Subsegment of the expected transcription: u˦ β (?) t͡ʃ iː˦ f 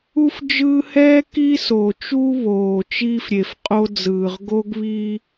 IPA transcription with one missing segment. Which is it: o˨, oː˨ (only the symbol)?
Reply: oː˨